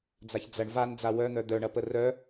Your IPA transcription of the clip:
d͡z a ç d͡z ɐ ɳ v a n d͡z a w œ n̪ œ d̪ œ ɳ ɐ p ə r œ

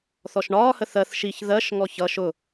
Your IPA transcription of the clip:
θ ɔ ʃ ɳ ɒː h ə θ ɜ θ ʃ i ç ð ɜ ʃ ŋ ɔ ç ʌ ʃ ʊ

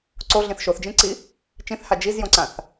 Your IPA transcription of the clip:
ǀ o ɮ ĩ θ ʃ o θ d͡ʒ ĩ ǀ i | t͡ʃ ĩ θ h a d͡ʒ i z j õ ǀ ã θ

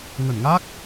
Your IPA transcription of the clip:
ŋ ə˧˩ n ŋ a˦˥ k̚

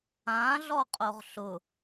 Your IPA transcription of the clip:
ã ɮ ɔ qʼ o ʁ ɬ ʊ

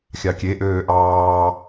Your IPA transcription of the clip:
xʲ ɑ kʲ e ʔ øː ʔ ɑː

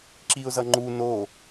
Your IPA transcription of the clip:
ǁ i ʊ̯ z ʌ ŋ͡ǃ u n o

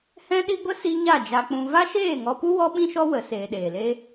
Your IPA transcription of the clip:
h ɛ̃˦ ɗ i˦ ɡʷ ə˦ s i˦ ɲ a˦˨ d͡ʒ a˧ k͡p ũ˧ v a˦ ʃ eː˦˨ ŋ ɔ˧ p u˦ w ɔ˦ ɓ ĩ˦ ʃ ɔ˦ w ə˨˦ s eː˧ ɗ eː˨ l eː˦

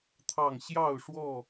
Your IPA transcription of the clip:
t̪ʰ ɑ˥˨ ŋ ɕ j ɑ˥˨ ʊ̯ ʂ w ɔ˥˨

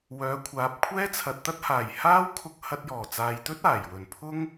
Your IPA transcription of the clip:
w œː˨˥ kʷʰ aː˨˥ p̚ kʷʰ ɛː˥ t͡sʰ ɐ˨ t̚ t̪ ɐ˥ t̚ h aː˨˩ j h aː˥ w kʰ ʊ˧ k̚ h ɐ˧ t̚ j ɔː˨˩ t͡s aː˨ j t̪ ɵ˥ t̚ aː˨˩ j w ɵ˨˩ n pʰ ʊ˥ ŋ

